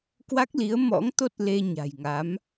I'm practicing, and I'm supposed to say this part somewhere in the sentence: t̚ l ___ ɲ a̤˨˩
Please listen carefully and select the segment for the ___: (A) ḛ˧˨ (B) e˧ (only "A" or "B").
B